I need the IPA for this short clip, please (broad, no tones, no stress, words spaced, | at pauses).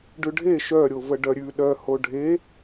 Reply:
ɖʉɖʱe ʃœɾʲo vəɖœɾʲʉ ɗœho ɖʱe